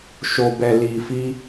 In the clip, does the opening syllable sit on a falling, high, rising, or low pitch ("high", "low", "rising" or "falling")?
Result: low